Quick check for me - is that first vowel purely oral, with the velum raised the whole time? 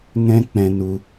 no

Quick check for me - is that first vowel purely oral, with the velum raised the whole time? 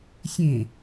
no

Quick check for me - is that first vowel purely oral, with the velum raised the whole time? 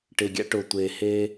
yes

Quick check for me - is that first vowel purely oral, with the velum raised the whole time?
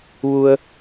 yes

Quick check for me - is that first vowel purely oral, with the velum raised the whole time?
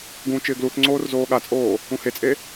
no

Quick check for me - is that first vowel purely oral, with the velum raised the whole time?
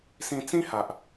no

